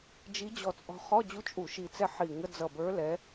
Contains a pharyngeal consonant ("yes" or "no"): yes